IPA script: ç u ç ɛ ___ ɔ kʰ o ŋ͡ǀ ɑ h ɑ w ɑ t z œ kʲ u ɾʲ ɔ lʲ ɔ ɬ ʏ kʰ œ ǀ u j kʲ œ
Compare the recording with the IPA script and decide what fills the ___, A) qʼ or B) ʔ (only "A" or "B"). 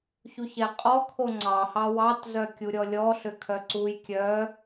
A